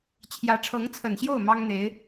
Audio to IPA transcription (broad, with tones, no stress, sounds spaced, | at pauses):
t͡ɕʰ j ä˧˥ ʈ͡ʂʰ ɤ˧˥ ŋ t͡sʰ ə˨˩ n ɕ j o˥˩ ʊ̯ m ɑ˥ ŋ n̪ e˧˥ ɪ̯